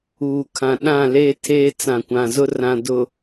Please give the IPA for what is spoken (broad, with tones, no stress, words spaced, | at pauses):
uː˨kʰã˨ ɗã˦˨leː˦ tʰeː˦t͡sã˨kʷã˨ zʊ˦rã˨ dʊ˨